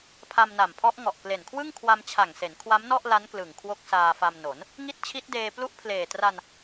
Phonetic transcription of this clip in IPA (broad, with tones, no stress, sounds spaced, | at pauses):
pʰ a˧ m n a˨˩ m pʰ ɔ˦˥ ʔ ŋ ɔ˨˩ ʔ k l e˨˩ n kʰ w ɯ˥˩ ŋ kʰ w a˧ m t͡ɕʰ a˨˩ ŋ s e˩˦ n kʰ w a˦˥ m n ɔ˥˩ ʔ l a˦˥ n k l ɯ˨˩ ŋ kʰ w o˦˥ k̚ s aː˧ f a˧ m n o˩˦ n | ŋ i˦˥ t̚ t͡ɕʰ i˦˥ t̚ d eː˧ p l u˦˥ ʔ pʰ l eː˨˩ t r a˧ n